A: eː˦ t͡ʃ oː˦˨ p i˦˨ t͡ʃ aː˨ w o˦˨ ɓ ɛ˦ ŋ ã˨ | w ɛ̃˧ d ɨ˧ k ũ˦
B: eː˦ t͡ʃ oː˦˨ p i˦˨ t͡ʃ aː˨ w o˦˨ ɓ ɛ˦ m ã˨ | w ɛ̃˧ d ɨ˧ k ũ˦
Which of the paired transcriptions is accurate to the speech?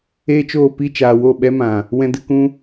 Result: B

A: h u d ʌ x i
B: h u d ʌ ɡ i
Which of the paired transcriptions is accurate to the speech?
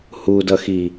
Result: A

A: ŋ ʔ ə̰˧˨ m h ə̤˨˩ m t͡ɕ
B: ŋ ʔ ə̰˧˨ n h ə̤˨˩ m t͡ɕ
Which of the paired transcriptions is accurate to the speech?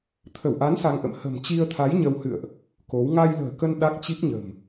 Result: A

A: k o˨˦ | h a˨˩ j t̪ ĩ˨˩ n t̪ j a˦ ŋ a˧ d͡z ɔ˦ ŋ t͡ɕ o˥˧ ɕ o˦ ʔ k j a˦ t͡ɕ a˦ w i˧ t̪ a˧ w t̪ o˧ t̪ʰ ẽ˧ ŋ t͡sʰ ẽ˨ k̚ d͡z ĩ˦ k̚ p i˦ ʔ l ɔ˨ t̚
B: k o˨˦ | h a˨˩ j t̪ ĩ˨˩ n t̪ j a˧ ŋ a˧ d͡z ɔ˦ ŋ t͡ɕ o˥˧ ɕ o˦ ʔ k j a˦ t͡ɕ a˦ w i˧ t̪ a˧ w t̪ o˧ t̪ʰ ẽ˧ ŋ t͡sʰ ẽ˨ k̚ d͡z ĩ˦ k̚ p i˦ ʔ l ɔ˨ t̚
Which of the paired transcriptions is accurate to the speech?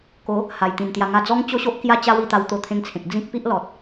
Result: B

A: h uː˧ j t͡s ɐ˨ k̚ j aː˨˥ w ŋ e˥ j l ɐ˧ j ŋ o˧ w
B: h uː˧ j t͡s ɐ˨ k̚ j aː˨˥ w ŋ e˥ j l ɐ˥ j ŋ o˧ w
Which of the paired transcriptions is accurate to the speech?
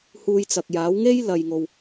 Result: A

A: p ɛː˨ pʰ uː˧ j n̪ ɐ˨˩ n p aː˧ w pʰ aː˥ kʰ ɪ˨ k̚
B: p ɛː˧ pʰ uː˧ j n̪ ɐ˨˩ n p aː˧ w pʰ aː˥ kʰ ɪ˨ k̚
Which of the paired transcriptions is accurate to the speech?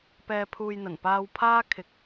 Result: B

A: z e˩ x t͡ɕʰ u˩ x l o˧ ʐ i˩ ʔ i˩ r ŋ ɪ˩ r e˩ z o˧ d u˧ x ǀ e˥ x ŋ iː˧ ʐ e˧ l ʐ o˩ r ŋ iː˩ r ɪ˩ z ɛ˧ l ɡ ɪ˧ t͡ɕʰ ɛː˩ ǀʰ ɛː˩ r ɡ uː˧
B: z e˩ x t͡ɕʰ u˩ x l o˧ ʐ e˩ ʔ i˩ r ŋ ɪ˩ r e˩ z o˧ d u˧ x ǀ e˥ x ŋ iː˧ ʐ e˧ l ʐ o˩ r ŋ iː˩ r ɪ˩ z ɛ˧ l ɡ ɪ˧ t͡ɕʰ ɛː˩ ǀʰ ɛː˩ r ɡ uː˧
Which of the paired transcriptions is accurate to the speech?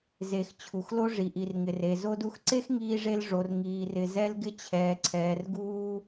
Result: A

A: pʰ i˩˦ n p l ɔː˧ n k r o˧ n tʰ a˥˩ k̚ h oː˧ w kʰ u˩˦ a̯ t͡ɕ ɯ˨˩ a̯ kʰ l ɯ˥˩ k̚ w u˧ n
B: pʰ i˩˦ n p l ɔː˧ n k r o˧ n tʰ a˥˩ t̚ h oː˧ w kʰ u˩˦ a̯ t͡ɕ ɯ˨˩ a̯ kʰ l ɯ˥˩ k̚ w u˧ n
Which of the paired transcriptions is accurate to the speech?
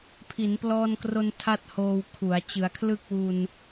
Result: B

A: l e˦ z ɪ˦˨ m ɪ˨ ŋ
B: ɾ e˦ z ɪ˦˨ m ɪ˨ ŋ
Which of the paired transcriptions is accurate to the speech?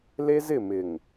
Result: A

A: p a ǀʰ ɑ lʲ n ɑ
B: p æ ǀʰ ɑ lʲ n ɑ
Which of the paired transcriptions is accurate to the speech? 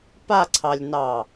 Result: A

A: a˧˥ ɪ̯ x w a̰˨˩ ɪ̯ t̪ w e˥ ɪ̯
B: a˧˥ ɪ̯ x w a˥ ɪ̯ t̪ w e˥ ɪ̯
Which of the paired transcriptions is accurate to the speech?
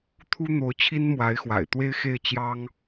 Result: A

